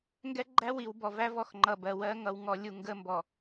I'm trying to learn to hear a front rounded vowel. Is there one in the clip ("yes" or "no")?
no